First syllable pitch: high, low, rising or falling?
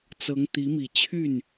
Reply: rising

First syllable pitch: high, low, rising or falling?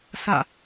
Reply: falling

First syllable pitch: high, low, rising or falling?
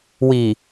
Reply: low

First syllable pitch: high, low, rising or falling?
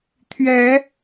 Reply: rising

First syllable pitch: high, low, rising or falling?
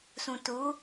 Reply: low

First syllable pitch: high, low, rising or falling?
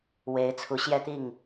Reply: rising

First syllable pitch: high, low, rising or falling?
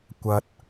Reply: low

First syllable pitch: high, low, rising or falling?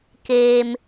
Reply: low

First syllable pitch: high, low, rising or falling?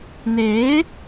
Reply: rising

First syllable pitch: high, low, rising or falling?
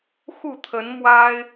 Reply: falling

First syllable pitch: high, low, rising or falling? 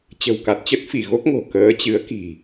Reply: low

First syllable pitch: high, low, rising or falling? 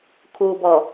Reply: low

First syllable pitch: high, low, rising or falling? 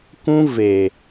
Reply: high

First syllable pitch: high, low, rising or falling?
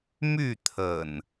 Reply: falling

